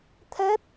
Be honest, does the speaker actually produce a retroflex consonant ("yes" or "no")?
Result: no